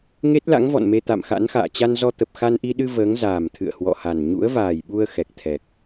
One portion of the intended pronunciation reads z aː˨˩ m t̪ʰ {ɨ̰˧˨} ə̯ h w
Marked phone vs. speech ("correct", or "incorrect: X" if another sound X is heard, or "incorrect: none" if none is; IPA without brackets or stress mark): correct